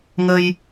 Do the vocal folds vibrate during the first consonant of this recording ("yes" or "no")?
yes